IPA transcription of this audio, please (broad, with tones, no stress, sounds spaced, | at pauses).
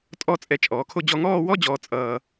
tʼ ɔ˥˧ t͡sʼ ɛ˧ t͡ʃʼ ɔː˩˧ kʰ o˥˧ d͡ʑ ɔ˧ ŋ ɔː˥˧ w ɔ˥ d͡ʑ ɔː˧ t͡sʼ ʌː˧